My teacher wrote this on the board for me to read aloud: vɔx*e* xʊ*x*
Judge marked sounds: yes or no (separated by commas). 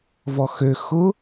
no, no